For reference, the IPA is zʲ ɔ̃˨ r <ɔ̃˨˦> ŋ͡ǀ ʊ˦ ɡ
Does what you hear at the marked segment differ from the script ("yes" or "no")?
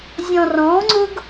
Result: no